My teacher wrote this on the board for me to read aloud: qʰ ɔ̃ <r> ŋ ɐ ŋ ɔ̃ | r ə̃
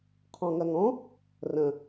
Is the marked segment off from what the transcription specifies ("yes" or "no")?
yes